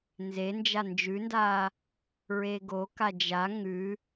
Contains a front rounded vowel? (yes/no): no